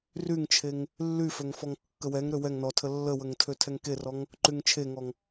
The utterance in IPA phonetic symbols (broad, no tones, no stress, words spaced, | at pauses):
ryŋt͡ʃʰeŋ | lːyføŋ fɔŋkːəwɛŋɾø wɛŋ nɔtʰə lːəwəŋ tʰøtʰɛŋkerɔŋ | ǃyŋt͡ʃʰeŋɔŋ